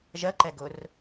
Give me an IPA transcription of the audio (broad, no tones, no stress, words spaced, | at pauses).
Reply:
ʒɜǃɛɡʊr